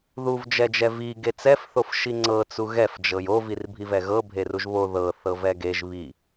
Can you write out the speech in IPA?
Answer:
ð u v d͡ʒ ɛ d͡ʒ ɛ v i ɡ e t͡s ɛ f θ o f ʃ i ŋ͡ǀ ɤ t͡s u ɣ ɛ f d͡ʒ ɤ j o v i r bʱ i v ɛ ɣ ɤ bʱ e r u ʒ β o ð ɤ θ ɤ v ɛ ɡ e ʒ β i

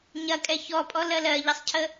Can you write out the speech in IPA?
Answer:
ɲ ɐ kʼ ɛ ç ɔ pʼ ɔ l ɜ l ɜ ʎ ɐ sˤ cʰ ə

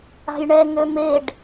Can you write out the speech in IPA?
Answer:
a̤ j ɳ ɛ ŋ ø m e ɖ

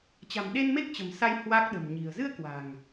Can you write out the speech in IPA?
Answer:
t͡ɕ a̤˨˩ m ɗ e˧ n m e˦˥ k̚ t͡ɕ ə̤˨˩ m s a˧ j h w a˦˥ k̚ ɗ ə̤˨˩ m ɲ i̤˨˩ ə̯ z ɨ˧ ə̯ k w a̤˨˩ ŋ

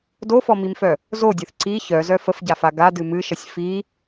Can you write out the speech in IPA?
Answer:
d o f ɔ m i m f œ | z o dʲ ɨ θ ǀ i ç œ z œ f ə f ɟ a f a ɡ a d ɨ m ɨ ʃ ə sʲ f i

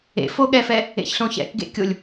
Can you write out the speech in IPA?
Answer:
ḛ f o ɠ ɛ f ɛ | ḛ ç ɬ õ ç ɛ̰ k ɡ ḛ kʲ o lʲ

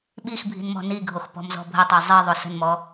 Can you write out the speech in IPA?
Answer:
ɓ i x bʱ i̤ n m ɔ̤ n i ɡʱ o x p ɔ̤ m z ɔ̤ bʱ ə tˤ o zˤ i ðˤ o s ə̤ n m ɔ

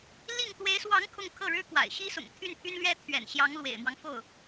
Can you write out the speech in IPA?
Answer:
l i˥˩ ŋ t̪ w e˧˥ ɪ̯ s w ɑ˧˥ ŋ kʰ ʊ˥˧ ŋ kʰ ɤ˥˩ ɻ ɻ̩˥ k w a̰˨˩ ɪ̯ ɕ i˥ s ʊ̰˨˩ ŋ t̪ʰ y˥˩ n pʰ y˥ n l ɥ ɛ˥ t̪ʰ ɥ ɛ̰˨˩ n ɕ j ɑ˧˥ ŋ l w ḛ˨˩ ɪ̯ m w ɑ˦ ŋ f o˥˩ ʊ̯

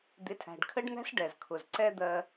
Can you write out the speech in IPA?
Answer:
d̪ ɪ˩˥ tʰ æ̤˩ ɖ kʰ ə˥ ɖ n̪ æ̤˥ s ɖ ɛ˩ z kʰ ʊ˩ z ǀ ɛ˥ d̪ ɜ˧

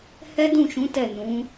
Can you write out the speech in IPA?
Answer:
h ɛ˦ d ũ˦˨ ʃ ũ˨˦ t ɛ˦˨ n ũ˨˦

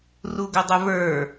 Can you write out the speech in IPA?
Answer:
r u ɡ ʊ dˤ ʊ v ə˞

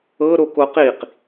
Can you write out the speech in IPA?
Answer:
ɤ ɾ o k o q i q

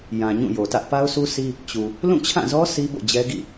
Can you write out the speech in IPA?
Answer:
j ã˨ ɲ ũ˦˨ j o˨ t ä˦ ʔ p a˦ ʊ̯ sʰ u˦ sʰ i˦ | t͡ɕ u˨ | l ũ˦˨ t͡ɕʰ ã˦˨ z ɔ˦ s i˦ b o̰˦˨ d͡ʑ ɛ˦ ɡ ḭ˦˨

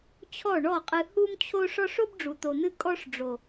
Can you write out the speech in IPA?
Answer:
t͡ɕʰ ɔ˦˨ ɳ ɔ˦˨ qʼ ɨ˧ h u˦ m t͡ɕʰ o˦ ʂ ɔ˦ ʂ o˦ b ɖ͡ʐ u˨ t̪ o˨ n̪ ɨ˧ kʼ ɔ˦ ʂ ɖ͡ʐ o˨

